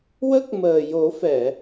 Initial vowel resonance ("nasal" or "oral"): oral